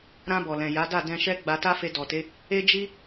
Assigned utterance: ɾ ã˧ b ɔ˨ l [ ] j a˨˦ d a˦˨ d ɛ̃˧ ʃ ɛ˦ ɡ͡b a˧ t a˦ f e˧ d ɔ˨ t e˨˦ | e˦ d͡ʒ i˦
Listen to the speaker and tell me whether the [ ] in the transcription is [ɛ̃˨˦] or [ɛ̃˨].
ɛ̃˨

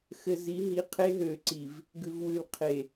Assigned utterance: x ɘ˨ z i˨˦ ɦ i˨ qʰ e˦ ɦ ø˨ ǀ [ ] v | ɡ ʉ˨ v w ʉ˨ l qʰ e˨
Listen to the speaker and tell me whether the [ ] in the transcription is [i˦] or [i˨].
i˨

